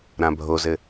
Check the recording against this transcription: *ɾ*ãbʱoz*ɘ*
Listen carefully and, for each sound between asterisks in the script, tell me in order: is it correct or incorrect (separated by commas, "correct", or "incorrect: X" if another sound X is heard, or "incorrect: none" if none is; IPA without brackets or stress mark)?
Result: correct, correct